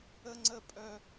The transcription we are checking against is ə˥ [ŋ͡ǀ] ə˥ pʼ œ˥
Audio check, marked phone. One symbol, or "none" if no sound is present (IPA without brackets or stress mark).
ŋ͡ǀ